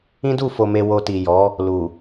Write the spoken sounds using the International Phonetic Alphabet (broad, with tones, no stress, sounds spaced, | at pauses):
ĩ˦ d u˦˨ f o˨ m e˨ w o˨ t i˨ j ɔ˨˦ | l u˨